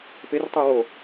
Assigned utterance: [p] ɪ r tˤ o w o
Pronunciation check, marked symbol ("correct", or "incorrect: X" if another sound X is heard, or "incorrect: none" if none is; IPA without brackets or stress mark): correct